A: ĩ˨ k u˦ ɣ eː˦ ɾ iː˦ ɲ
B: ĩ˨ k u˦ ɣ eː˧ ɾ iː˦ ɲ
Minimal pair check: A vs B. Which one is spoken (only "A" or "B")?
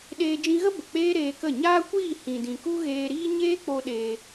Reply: B